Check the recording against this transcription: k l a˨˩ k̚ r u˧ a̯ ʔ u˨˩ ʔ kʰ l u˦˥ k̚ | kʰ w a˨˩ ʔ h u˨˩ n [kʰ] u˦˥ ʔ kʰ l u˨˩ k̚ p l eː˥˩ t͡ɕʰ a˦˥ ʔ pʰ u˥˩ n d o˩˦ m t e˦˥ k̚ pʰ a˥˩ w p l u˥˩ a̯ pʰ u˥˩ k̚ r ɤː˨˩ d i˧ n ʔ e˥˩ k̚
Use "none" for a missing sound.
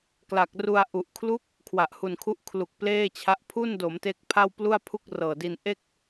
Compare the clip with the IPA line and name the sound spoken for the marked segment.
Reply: kʰ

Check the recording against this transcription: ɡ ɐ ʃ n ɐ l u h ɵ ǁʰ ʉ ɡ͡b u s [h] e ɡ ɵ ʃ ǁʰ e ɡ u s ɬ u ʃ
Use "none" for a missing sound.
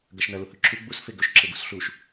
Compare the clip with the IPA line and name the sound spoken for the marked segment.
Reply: f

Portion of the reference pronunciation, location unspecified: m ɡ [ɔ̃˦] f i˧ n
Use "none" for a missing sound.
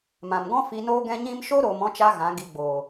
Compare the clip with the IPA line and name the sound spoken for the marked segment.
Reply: ɔ̃˦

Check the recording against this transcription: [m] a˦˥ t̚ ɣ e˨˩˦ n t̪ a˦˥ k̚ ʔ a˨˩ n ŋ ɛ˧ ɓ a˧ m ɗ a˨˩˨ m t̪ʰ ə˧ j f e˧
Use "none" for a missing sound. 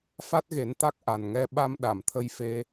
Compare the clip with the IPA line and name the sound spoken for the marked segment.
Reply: f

